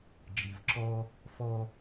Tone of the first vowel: low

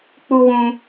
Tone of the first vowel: high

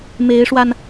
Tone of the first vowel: rising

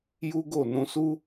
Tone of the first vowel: high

